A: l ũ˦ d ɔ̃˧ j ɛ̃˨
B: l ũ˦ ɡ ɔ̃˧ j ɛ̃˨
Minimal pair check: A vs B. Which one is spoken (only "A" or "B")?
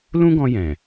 B